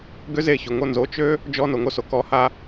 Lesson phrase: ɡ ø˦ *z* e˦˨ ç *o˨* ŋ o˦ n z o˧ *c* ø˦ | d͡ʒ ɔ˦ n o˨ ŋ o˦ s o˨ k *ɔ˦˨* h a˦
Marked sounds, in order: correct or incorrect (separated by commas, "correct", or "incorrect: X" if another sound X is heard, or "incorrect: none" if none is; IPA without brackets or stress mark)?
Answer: correct, correct, incorrect: t͡ʃ, incorrect: ɔ˧